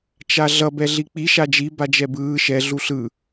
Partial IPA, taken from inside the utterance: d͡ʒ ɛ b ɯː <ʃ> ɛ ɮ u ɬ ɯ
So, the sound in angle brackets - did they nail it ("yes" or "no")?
yes